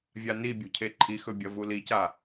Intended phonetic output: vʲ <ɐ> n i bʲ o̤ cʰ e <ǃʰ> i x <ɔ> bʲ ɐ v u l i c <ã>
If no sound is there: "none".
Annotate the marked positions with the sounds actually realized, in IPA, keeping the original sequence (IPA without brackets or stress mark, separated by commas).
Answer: a, ǃʰ, ɵ, a